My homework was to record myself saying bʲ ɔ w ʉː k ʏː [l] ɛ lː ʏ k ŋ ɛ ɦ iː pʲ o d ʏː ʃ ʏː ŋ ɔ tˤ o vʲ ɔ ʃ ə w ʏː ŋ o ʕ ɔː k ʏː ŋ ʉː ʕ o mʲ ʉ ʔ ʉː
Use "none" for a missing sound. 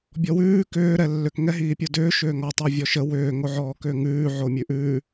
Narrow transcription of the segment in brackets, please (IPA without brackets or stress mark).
ɾ